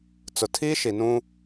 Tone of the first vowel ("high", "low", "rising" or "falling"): low